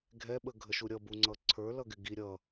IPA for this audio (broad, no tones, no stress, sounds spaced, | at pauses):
ɡʱ ɛ ɓ ə ɡʱ ə ʃ u ɾʲ ʌ b u ŋ͡ǀ ʌ ǀʰ ə˞ l ʌ ɡ ɪ ɡ i ɾʲ ʌ